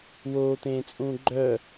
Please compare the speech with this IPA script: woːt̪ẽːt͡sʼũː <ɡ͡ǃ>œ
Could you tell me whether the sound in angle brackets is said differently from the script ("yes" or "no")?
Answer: no